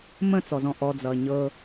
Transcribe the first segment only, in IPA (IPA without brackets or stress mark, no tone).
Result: m